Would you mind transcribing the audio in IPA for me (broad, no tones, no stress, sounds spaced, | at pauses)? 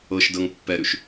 ɤ ʃ d ɤ ŋ pː ɛ ɾ ʉ ʃ